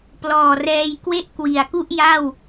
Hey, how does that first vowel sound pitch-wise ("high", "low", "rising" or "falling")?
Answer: low